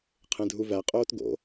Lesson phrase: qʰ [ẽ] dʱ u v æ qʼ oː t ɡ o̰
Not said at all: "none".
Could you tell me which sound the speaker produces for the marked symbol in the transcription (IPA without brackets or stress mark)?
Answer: ẽ